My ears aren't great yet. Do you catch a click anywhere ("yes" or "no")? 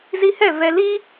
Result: no